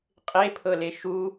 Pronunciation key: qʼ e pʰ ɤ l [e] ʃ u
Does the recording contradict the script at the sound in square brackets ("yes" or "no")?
no